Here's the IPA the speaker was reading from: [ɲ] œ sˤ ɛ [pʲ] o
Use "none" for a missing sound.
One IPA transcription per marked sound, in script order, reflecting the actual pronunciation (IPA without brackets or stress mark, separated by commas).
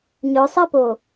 ɲ, p